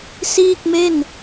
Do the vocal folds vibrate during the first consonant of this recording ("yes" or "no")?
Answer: no